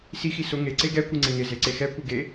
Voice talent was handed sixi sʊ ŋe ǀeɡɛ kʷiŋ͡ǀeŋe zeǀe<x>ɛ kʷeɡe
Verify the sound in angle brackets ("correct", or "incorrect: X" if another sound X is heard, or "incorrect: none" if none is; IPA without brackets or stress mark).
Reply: correct